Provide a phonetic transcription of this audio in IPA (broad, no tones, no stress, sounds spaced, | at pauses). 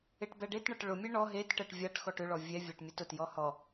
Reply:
e ʈ b ɛ ɖ e t ɳ ɐ ʈ ɭ ʊ mʲ ɛ ɳ ɔ ɦ e t ʈ ɛ ʈ vʲ a ʈ x ɔ ʈ ʏ ɭ ɔ vʲ ɛ vʲ a ʈ mʲ ɐ t ʊ t j ɔ h ɔ